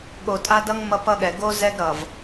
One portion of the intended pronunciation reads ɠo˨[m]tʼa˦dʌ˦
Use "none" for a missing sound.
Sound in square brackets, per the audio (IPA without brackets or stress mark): none